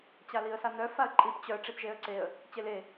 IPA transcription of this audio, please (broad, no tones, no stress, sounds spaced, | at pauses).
t͡ɕ a l i ə̯ s a n̪ œ f a ə̯ ǃʼ i p t͡ɕ œ ʈ͡ʂ i p ʒ e ə̯ ǀ e ə̯ | t͡ɕ e l e